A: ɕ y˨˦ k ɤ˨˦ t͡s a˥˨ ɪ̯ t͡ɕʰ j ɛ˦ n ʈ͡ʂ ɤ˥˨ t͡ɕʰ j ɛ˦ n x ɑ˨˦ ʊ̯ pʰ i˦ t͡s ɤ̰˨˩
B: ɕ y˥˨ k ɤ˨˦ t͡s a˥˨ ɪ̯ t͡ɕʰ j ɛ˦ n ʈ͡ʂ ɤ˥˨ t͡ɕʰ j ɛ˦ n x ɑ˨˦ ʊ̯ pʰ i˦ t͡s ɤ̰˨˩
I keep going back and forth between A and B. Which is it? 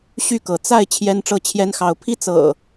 B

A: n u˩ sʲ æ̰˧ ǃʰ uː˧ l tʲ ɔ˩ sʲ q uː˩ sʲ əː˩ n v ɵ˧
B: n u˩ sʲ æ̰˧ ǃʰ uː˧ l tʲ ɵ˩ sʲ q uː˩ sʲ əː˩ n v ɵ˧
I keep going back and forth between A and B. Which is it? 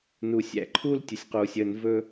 B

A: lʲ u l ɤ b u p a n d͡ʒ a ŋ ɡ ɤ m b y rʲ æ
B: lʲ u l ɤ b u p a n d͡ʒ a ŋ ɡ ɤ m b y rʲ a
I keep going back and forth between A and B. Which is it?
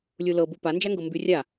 B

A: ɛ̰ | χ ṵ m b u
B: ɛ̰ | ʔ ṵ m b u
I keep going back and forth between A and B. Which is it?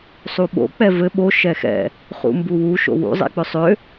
A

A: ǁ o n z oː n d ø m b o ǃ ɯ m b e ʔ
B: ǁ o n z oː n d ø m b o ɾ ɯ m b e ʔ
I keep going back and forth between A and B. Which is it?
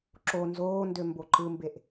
A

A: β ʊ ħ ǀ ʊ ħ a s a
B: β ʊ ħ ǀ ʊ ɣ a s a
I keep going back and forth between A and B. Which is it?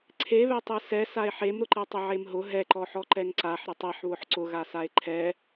B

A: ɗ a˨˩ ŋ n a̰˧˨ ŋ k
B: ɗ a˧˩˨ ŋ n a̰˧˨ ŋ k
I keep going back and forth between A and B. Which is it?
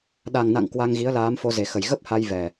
A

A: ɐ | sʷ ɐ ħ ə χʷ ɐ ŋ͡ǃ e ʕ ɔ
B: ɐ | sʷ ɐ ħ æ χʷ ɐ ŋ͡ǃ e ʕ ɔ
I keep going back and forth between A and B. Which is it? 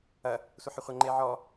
A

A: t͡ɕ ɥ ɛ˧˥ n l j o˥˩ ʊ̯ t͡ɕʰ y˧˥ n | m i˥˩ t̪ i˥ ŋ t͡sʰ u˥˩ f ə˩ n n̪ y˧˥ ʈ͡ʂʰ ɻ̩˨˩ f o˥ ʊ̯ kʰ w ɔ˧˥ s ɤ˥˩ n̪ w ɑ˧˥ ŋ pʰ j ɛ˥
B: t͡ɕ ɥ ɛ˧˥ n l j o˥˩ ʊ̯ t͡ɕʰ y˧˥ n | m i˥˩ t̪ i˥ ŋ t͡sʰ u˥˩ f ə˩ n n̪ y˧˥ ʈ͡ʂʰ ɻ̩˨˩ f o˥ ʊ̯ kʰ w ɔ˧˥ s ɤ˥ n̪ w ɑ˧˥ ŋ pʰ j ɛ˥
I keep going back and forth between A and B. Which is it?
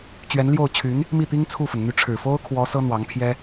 B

